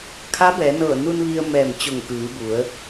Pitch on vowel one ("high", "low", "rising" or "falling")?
rising